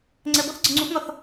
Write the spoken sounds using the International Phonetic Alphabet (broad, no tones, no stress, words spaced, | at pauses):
ŋ͡ǀɛbɔθ ɡ͡ǀəŋ͡ǀufŋɒθ